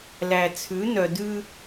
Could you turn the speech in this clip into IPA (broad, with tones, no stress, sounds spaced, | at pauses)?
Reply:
l æ˨ t͡sʰ ʉ˨˦ n œ˨ d ʉ˦